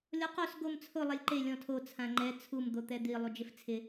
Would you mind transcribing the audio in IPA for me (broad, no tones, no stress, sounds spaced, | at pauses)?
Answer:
lʲ ɔ q o s ɡ o m t͡sʰ ʊ lˠ ɛ lʲ ǃ e lʲ ɔ̃ tʰ o t͡sʰ ã ŋ͡ǃ ɛ t͡sʰ u m d̪ o t̪ ɛ d̪ i lˠ u d͡ʒ ɪ f t͡sʰ ɪ